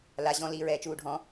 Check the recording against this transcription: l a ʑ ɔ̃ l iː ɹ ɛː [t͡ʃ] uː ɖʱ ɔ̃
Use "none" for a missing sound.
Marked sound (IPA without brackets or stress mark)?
t͡ʃ